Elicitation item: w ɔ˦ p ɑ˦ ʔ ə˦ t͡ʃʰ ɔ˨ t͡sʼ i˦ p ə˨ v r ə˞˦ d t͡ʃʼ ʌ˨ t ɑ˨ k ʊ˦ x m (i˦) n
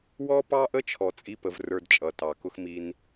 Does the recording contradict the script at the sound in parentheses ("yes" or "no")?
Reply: no